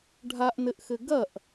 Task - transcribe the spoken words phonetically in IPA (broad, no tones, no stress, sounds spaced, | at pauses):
ɖʱ a ʔ n ɘ ʔ x ɘ ɡ ɐ ʔ